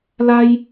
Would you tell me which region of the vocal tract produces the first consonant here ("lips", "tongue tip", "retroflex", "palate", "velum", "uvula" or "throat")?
tongue tip